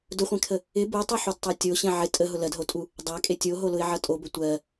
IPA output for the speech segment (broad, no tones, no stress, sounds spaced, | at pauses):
d ʊ χʷ ẽ kʰ ə | ɪ b u tˤ u ħ u d tˤ a tʲ o ɕ ẽ ʕ ɪ tʼ ə ɦ ʊ l ɜ d ɦ o tʼ u | dˤ a kʼ e tʲ o ɦ o l ʊ ɪ̯ ʕ ʌ tʼ o b ə tʷ ɜ